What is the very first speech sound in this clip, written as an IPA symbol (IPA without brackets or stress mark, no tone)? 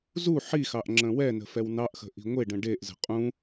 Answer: z